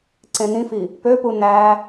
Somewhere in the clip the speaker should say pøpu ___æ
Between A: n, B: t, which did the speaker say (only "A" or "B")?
A